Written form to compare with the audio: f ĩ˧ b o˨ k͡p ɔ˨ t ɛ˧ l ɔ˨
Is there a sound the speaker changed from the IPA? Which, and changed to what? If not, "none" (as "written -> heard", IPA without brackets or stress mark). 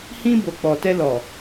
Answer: f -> h